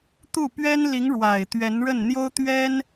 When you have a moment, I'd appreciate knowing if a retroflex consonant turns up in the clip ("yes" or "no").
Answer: yes